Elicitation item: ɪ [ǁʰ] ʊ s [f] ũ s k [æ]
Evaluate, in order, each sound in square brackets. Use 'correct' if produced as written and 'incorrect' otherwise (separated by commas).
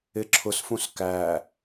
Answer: correct, correct, correct